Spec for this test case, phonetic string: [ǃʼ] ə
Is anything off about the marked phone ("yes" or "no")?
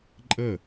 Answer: no